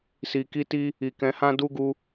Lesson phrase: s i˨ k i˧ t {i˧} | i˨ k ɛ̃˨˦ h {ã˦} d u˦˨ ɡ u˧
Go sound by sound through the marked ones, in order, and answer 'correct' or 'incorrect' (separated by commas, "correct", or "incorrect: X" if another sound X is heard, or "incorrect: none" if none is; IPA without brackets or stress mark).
correct, correct